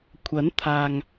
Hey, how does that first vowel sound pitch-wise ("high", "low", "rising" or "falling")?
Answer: rising